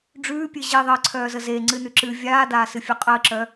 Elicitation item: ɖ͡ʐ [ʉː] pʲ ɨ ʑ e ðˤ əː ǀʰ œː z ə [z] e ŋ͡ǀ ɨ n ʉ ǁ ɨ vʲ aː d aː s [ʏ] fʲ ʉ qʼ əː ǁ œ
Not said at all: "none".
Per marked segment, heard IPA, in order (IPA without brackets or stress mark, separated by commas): ʉː, z, ɨ